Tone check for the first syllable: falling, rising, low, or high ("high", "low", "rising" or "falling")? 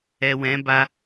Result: low